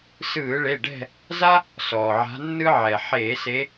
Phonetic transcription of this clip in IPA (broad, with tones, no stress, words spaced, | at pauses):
sɯː˧˩˧ɭe˩˧˩ɖɛ̤˦˨ | za˥ | sɔː˩ʕa̤˨˦ nːɯ˥ʕɛ˩ ħeː˧˩˧ se˨˦